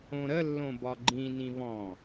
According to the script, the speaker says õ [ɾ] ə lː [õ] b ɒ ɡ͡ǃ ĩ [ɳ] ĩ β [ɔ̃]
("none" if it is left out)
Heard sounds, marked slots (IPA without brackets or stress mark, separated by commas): ɾ, õ, n, ɔ̃